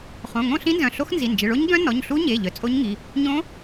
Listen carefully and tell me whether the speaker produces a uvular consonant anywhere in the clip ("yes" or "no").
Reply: yes